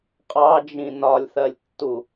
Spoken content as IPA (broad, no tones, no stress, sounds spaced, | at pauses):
qʼ ɑ d͡ʒ ĩ n ɒ lʲ θ ɜ lʲ tː u